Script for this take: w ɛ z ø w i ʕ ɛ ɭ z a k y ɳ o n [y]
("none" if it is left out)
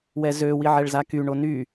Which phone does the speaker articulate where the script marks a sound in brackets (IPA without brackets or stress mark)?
y